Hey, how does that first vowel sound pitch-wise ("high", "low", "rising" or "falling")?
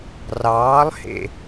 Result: rising